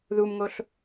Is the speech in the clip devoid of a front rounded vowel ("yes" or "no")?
yes